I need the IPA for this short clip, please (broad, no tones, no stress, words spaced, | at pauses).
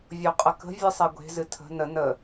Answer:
vʲoqʼəkə̤ vʲɨsˤeɡʷe̤ zɨtʰə̤ nə nə